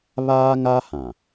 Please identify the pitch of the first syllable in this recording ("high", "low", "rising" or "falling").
high